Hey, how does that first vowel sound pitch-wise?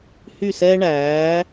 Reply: falling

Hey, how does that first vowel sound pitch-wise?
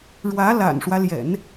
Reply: rising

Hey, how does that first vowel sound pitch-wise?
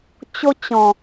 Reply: high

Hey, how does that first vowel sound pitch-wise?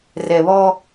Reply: low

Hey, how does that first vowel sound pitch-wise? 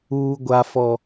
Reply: high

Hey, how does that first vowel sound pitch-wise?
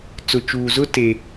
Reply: low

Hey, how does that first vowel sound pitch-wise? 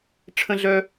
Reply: high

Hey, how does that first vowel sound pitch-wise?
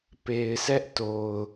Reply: low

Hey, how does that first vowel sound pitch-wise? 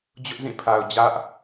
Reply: high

